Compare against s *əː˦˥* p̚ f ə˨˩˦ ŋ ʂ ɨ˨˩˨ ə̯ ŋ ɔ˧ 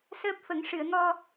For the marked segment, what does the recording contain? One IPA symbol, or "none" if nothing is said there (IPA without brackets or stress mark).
əː˦˥